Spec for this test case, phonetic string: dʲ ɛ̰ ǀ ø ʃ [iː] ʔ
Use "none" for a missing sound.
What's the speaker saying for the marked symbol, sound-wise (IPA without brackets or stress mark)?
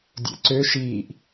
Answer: iː